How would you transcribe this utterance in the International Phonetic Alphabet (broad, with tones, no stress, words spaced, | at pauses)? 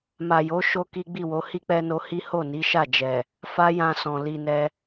ma˨jo˨˦ ʃo˦ki˦ ɡ͡bi˦˨wo˨˦ hi˦k͡pɛ˧ no˧hi˦ ho˦˨ni˨˦ʃa˦˨d͡ʒɛ˨ | fa˦jã˧sɔ̃˨ li˨ nɛ˧